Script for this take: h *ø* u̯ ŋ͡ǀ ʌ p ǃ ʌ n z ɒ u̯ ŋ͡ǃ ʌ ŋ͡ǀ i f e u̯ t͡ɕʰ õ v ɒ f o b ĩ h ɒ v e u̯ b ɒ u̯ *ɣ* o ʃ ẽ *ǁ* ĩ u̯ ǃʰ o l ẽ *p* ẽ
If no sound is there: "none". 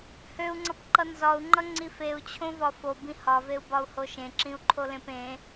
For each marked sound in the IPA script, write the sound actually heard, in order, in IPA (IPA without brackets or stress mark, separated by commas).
ø, h, ǁ, p